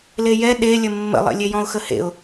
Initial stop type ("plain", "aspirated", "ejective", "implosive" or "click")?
implosive